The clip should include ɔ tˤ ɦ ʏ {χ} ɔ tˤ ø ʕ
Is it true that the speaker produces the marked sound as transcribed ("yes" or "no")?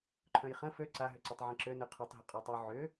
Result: no